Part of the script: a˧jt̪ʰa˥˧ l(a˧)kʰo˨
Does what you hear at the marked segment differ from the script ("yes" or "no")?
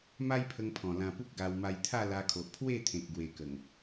no